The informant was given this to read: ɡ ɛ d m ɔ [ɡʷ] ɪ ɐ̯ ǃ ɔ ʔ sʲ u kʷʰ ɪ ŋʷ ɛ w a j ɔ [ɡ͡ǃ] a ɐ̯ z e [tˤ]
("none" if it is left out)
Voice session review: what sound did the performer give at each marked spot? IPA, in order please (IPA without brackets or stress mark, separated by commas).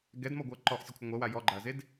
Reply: ɡʷ, ɡ͡ǃ, d